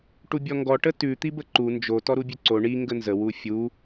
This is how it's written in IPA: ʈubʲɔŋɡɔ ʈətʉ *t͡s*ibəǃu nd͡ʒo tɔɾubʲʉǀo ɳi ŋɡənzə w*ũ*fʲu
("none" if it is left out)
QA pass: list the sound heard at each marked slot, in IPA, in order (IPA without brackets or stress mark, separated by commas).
t̪, u